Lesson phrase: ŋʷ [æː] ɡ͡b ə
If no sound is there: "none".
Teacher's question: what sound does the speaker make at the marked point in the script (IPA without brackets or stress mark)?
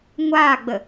aː